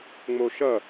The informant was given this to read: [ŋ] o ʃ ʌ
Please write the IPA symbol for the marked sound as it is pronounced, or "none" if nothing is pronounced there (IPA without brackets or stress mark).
ŋ͡m